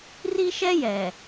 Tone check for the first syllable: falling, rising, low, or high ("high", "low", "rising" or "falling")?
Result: high